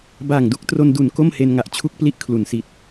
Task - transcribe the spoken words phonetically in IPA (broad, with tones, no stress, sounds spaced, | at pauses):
b aː˨˩ ŋ d u˥˩ k̚ t r o˧ n d u˨˩ n k o˥˩ m h e˧ n ŋ a˨˩ ʔ t͡ɕʰ u˦˥ k̚ p l i˦˥ ʔ kʰ l u˩˦ n s i˨˩ t̚